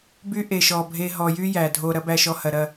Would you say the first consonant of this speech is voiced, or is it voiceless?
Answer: voiced